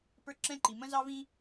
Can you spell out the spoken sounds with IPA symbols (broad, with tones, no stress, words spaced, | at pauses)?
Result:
pə˞˥˧ǁɛ̃˥˧ǃi˩˧ mə̃˥zɑ˥vĩ˥